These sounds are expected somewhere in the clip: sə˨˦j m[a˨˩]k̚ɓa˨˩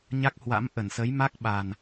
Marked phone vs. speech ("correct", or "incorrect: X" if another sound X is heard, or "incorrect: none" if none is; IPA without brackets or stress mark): incorrect: a˦˥